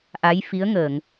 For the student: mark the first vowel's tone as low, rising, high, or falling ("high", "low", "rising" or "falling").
rising